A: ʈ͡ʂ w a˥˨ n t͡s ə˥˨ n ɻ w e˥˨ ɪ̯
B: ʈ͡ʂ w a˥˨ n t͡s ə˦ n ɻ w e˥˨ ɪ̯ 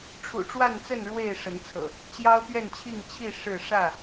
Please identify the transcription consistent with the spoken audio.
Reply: A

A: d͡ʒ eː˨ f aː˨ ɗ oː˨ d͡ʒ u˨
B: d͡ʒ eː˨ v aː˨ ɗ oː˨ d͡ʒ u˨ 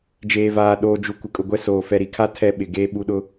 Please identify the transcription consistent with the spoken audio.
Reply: B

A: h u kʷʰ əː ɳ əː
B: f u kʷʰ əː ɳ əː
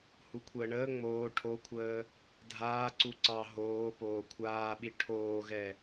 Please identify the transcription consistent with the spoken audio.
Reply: A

